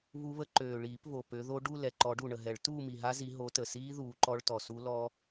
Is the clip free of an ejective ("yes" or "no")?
yes